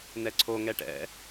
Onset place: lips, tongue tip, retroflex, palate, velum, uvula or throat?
tongue tip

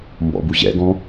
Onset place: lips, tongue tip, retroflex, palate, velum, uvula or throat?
lips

